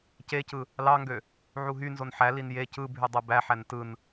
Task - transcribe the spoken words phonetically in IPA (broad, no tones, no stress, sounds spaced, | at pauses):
c e c ɯ | l ɑ ŋ ɡ ø | ʕ u ɦ y n z o n ħ æ l i n j e c ɯ bʱ y dˤ u b æ ħ æ n t ɯ n